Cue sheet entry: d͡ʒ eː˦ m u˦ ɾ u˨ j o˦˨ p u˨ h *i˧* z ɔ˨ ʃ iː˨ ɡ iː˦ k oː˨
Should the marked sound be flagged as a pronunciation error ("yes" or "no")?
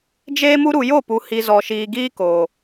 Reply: yes